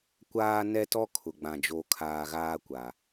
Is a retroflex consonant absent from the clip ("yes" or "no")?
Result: yes